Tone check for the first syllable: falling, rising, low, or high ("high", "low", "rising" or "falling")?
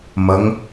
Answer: rising